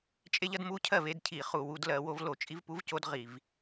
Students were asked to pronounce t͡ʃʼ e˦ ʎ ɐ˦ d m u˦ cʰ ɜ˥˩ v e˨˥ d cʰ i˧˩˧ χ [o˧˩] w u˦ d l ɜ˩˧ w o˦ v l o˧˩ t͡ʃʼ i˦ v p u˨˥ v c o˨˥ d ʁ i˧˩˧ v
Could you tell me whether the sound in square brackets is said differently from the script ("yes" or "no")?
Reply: yes